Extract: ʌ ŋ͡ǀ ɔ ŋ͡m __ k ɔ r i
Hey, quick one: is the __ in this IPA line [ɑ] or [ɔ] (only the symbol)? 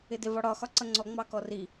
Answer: ɑ